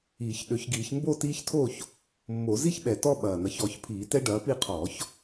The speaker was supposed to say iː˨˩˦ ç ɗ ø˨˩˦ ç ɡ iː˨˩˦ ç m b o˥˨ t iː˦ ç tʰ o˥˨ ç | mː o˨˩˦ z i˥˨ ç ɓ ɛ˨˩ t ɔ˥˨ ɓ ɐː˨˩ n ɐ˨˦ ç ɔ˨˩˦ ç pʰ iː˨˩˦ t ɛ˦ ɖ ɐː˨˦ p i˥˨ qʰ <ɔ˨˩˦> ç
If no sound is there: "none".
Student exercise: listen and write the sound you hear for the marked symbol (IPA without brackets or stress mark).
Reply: ɔː˨˩˦